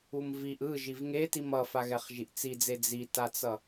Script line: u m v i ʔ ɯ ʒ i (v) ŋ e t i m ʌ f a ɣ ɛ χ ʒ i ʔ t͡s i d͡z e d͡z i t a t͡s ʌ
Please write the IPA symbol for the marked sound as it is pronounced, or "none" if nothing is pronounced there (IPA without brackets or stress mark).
v